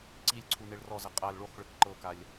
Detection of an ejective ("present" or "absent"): present